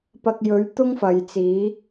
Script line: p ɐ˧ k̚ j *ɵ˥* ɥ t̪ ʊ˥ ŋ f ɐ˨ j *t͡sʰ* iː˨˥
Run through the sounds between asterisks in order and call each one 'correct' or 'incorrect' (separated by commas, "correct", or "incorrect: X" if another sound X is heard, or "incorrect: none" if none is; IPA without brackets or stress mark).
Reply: incorrect: ɵ˨˥, incorrect: t͡s